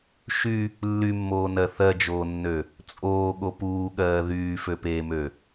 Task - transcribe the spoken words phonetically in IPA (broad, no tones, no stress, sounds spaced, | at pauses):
ʃ y | lː y mː oː n ɜ θ ɜ d͡ʒ oː nː ø | t͡sʼ oː ɠ o p uː ɠ ɜː ð yː f ø p eː m ø